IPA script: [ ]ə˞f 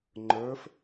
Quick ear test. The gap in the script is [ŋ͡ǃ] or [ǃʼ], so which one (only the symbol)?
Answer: ŋ͡ǃ